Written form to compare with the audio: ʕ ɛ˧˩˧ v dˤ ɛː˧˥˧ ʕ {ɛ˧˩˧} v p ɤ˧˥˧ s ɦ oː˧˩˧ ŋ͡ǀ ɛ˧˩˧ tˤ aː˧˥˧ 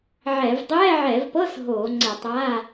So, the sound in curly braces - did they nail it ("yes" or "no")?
yes